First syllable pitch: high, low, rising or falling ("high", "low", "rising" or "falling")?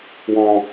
high